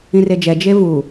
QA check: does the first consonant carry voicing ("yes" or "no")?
yes